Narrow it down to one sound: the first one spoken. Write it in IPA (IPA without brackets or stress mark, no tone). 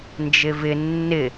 n